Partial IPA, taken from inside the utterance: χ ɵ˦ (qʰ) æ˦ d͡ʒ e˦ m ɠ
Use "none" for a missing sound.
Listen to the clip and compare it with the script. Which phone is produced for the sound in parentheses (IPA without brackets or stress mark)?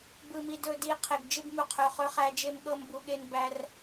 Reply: χ